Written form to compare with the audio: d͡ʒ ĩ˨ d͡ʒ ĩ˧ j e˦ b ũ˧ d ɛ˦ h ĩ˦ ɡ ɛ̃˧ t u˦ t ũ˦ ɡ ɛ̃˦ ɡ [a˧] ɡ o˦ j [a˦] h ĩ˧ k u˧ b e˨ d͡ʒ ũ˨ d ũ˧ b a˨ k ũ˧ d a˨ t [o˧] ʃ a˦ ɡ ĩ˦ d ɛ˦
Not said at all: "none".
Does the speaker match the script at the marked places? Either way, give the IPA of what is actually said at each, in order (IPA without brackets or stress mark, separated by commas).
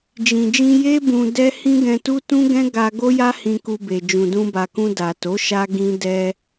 a˧, a˦, o˨˦